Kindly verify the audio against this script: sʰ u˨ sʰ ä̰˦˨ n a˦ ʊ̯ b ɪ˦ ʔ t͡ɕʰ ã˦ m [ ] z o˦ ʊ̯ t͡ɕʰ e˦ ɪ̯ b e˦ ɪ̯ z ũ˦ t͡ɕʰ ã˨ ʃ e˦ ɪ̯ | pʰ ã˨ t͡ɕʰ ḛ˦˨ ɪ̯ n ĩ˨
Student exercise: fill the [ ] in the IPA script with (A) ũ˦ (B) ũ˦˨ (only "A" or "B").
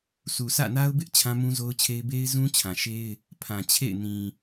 A